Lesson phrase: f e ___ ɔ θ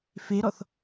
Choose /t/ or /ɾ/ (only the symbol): ɾ